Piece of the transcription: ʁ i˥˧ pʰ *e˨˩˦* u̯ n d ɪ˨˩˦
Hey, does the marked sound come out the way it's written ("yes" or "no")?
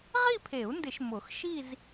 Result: yes